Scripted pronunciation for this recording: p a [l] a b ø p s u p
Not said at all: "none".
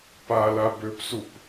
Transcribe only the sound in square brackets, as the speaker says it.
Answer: l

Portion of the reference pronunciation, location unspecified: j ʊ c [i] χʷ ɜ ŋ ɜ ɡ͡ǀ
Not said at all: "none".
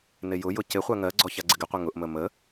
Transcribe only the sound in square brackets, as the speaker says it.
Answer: ɪ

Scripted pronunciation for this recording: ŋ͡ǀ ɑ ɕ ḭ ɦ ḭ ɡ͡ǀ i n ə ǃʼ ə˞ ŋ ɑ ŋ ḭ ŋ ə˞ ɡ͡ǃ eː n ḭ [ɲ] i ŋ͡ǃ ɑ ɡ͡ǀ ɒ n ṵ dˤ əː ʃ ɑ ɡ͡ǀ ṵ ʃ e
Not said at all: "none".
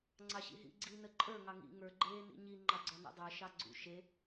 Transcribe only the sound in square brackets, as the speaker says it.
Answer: ɲ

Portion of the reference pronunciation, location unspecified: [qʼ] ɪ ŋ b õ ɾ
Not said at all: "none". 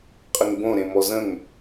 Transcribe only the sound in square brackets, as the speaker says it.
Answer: qʼ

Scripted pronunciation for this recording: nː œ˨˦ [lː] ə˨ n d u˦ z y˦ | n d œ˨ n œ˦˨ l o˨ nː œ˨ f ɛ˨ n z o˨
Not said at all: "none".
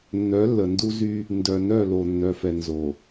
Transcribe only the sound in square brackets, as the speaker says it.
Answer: lː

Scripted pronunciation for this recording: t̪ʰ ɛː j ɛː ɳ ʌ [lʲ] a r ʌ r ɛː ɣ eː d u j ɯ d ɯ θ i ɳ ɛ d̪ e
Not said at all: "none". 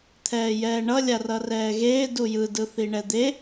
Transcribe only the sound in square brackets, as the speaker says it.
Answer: lʲ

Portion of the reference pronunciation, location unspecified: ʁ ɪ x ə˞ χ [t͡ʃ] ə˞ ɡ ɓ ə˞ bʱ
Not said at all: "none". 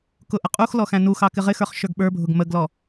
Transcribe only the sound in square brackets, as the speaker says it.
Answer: ʃ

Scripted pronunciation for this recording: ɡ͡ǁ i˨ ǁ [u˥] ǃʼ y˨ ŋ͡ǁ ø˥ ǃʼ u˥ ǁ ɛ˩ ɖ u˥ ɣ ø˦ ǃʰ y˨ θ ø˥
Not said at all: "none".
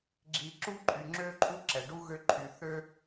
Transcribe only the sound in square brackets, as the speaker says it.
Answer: u˥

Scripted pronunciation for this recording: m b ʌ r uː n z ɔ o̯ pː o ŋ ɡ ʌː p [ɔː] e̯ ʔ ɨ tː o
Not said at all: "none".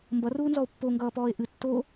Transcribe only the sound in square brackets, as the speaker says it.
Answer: ɔː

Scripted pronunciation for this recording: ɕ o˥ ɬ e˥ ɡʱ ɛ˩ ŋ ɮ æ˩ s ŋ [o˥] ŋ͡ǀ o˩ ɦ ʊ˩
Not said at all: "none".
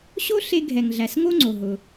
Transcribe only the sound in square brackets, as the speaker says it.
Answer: o˥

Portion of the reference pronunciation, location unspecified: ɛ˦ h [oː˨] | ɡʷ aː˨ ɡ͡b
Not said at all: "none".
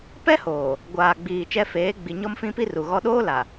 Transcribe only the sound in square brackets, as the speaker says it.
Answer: oː˨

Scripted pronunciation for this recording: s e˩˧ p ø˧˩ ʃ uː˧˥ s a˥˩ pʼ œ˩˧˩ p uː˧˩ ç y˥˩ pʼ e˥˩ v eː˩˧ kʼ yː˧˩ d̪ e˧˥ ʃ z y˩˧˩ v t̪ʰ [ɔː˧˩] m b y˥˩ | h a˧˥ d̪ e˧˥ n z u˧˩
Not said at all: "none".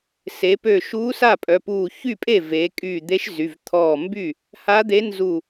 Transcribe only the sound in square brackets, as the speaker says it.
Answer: ɔː˧˩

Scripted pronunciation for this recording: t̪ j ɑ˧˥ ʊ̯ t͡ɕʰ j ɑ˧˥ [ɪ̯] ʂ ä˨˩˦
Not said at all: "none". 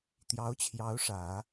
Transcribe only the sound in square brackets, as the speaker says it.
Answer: ʊ̯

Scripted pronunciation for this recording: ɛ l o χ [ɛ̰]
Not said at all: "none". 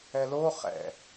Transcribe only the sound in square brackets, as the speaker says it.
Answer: ɛ̰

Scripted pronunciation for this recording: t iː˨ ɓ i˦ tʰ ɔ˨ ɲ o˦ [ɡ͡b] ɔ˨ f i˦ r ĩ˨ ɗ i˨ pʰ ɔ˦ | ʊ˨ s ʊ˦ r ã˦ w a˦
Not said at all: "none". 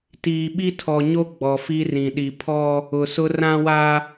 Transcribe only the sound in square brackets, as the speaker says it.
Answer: ɡ͡b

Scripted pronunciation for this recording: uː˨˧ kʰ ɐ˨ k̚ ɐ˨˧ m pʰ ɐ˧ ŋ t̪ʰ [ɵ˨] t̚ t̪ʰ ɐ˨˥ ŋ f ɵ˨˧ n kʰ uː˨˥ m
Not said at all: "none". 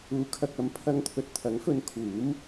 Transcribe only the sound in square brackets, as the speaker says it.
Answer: ɵ˨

